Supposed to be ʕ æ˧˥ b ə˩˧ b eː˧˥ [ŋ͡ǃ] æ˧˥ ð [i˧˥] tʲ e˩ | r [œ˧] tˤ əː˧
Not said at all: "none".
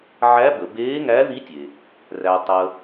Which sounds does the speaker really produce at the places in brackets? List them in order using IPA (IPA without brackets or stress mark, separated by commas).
ŋ, i˧˥, æ˧